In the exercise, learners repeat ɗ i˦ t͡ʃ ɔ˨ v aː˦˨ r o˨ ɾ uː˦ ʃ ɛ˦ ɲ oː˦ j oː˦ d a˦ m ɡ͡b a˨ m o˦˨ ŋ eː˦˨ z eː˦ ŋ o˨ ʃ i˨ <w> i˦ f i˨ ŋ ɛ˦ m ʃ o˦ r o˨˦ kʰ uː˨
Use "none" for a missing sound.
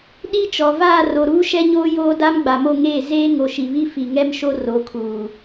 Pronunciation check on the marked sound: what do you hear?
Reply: β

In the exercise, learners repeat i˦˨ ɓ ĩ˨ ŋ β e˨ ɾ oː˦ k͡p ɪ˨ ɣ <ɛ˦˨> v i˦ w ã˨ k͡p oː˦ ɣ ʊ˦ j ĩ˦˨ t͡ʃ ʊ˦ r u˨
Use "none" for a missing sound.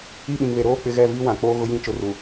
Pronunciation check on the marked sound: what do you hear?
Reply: ɛ˦˨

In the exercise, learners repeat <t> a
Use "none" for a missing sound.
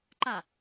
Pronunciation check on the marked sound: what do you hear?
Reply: ǃ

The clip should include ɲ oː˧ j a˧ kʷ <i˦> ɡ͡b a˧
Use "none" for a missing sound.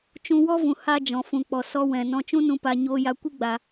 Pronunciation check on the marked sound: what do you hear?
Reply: i˦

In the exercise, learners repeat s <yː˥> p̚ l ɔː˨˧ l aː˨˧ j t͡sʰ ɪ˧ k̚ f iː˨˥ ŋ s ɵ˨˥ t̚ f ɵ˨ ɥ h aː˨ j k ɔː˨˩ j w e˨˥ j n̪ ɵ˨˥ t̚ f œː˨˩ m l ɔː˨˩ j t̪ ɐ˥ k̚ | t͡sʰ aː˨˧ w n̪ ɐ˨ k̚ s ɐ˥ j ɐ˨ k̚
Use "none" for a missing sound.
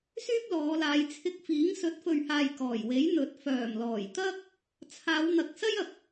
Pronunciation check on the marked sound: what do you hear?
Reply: yː˥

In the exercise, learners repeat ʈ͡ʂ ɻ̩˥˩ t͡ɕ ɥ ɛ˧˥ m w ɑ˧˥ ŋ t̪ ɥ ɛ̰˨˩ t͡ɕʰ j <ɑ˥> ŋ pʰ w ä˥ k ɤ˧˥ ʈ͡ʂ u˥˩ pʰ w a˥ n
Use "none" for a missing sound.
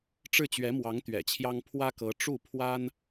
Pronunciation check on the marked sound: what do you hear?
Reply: ɑ˥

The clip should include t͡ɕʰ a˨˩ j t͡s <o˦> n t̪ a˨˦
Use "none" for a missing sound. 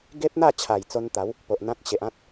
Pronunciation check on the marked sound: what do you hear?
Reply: o˦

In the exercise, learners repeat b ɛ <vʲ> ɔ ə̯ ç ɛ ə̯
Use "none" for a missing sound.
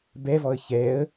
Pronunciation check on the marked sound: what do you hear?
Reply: v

